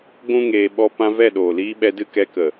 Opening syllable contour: high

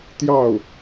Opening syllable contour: falling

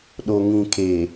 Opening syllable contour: low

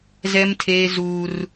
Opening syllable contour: high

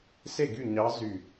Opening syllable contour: falling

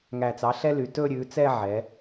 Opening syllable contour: low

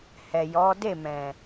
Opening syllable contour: low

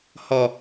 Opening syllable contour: low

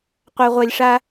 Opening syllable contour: low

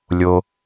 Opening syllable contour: low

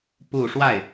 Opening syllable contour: falling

